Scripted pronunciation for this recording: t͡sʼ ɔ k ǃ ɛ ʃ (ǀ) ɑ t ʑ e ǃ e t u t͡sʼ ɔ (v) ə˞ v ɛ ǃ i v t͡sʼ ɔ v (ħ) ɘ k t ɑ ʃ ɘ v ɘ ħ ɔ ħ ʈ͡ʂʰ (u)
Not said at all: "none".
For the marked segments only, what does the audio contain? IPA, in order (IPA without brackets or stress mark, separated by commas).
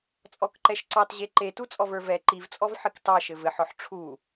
ǀ, v, ħ, u